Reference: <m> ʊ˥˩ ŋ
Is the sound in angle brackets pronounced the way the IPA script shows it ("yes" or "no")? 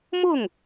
yes